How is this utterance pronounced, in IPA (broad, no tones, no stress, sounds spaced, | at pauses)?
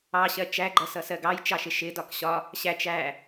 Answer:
ɑ ɕ ɜ t͡ʃ æ ɡ͡ǃ ʌ s ʌ s ɜ ɡ ɑ j t͡ʃ ɑ ʃ ɪ ʃ ɪ d ɒ k ɕ ɒ | ɕ æ t͡ʃ æ